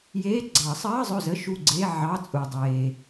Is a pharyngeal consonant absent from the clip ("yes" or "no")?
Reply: no